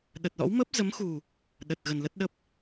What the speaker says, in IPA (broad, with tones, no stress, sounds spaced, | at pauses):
ɗ ə˨˩ t̚ l ɔ̰˧˥ w m ə˦˥ p̚ z ə˨˦ m x u˨˩ | ɗ ə˨˩ t̚ ɣ ə˨˩ n l ə˦˥ t̚ ɗ ə˦˥ p̚